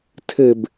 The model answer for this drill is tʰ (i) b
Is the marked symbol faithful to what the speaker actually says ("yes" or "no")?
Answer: no